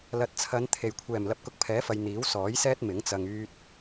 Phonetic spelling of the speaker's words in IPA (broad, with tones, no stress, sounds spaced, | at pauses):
l ɐ˨ t̚ t͡sʰ ɐ˨˧ n t̪ʰ e˨˩ j kʷʰ ɛː˨˩ m l ɐ˧ p̚ k ʊ˧ k̚ pʰ ɛː˨˥ f ɐ˨ j n̪ iː˨˥ w s ɔː˨˥ j s ɛː˥ t̚ m ɪ˨˥ ŋ t͡s ɐ˧ ŋ yː˥ t̚